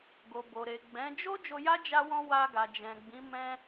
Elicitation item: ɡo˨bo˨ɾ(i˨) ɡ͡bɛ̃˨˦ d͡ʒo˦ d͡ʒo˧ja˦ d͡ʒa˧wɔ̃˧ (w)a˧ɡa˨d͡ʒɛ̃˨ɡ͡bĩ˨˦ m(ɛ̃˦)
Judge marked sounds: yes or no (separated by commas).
no, yes, yes